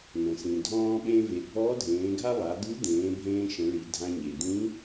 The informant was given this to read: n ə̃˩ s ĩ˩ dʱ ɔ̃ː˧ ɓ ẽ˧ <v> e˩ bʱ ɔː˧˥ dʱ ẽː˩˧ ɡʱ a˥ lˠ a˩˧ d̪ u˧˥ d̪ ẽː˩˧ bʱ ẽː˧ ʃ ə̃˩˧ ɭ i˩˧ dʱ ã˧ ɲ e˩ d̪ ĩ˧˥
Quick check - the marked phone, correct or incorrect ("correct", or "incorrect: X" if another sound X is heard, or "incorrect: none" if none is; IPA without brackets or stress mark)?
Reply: correct